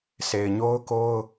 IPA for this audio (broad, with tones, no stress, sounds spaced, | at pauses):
sʰ e˨ ɪ̯ ɲ o˦ ʊ̯ k o˦ ʊ̯